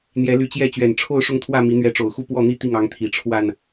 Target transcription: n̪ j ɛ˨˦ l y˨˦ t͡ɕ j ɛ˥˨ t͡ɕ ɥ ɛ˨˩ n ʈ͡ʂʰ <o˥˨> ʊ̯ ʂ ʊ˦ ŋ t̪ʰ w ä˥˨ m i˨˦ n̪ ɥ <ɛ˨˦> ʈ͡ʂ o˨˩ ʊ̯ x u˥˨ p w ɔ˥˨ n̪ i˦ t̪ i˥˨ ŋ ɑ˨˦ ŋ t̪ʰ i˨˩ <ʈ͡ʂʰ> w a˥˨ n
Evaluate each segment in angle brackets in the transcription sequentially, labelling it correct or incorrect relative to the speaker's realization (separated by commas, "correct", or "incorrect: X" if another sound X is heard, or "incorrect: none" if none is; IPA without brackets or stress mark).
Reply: correct, correct, correct